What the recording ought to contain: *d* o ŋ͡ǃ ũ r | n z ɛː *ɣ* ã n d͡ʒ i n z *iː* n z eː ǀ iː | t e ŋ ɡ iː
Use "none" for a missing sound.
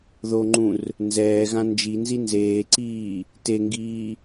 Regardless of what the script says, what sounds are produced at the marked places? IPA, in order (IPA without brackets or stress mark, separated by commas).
ð, ɣ, i